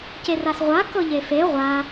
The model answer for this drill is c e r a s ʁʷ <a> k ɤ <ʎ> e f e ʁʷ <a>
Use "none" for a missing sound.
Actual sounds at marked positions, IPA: a, ʎ, a

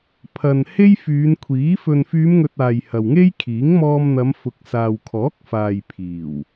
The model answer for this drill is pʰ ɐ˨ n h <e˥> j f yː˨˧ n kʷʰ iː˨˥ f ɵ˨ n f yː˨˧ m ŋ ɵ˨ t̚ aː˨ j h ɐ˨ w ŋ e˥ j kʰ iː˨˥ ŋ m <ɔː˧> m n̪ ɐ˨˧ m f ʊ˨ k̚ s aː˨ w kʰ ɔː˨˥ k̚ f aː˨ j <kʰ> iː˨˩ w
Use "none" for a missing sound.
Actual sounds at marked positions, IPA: e˥, ɔː˧, pʰ

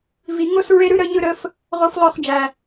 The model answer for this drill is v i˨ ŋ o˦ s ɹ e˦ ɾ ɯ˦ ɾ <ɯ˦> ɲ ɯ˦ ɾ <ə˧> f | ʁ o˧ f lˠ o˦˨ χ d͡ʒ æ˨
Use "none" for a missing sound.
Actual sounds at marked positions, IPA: ə˦, ə˦

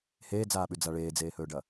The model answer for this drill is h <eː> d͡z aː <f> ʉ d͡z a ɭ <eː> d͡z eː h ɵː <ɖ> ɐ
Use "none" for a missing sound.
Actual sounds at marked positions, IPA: eː, ɓ, eː, ɖ

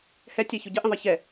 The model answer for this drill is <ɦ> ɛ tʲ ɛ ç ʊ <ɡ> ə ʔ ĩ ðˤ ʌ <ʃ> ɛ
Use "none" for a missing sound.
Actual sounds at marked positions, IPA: h, ɟ, ç

